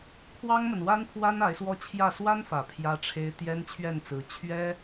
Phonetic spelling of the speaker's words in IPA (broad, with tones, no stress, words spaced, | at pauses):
kʰwɑ˥ŋmə˨nwa˥npʰwa˥n a˧˥ɪ̯swɔ˥t͡ɕʰjä˥˩ swa˥nfä˨˩ pʰjä˥ʈ͡ʂʰe˥ɪ̯ t̪jɛ˥nt͡ɕʰɥɛ˥˩nt͡sɹ̩˧˥ t͡ɕʰɥɛ˥